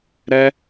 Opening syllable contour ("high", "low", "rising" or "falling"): high